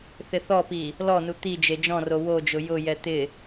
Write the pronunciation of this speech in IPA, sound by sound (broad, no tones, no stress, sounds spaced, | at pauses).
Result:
θ ɪ θ ɔ p i | l ɔ n u t̪ i d͡ʒ e d͡ʒ ɔ̃ r o w o d͡ʒ ʊ j ʊ j ɛ t̪ ɪ